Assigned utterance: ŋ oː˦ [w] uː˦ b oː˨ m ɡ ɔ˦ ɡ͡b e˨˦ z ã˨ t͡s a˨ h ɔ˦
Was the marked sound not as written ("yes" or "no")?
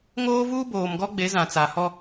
yes